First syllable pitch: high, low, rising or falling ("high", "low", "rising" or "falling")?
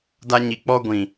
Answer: high